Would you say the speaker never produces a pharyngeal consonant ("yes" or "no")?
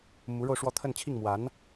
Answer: yes